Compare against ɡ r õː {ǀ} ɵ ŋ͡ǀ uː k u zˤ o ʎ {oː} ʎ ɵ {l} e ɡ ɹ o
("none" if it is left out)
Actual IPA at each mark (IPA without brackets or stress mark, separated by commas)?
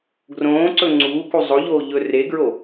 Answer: ǀ, oː, r